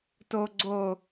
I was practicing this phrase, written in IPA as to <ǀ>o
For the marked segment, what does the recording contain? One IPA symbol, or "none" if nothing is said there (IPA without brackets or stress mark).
ɡ͡ǀ